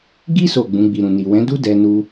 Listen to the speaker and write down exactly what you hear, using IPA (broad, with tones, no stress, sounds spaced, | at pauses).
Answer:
ɡ i˦ s o˦˨ ɡ͡b ũ˨˦ ɡ͡b i˧ ɾ ũ˨ n i˨ w ɛ̃˨˦ d u˦ d ɛ˧ n u˧